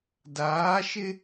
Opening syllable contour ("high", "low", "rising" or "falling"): rising